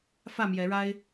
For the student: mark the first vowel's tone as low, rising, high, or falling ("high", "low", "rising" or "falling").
falling